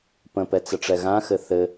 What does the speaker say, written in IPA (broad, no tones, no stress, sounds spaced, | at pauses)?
p ə̃ p ɛ t͡s ə ʈ͡ʂ ɛ ɣ ã x ɘ θ ɘ